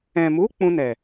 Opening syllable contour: low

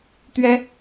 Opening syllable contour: high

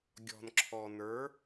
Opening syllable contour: low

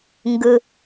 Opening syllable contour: low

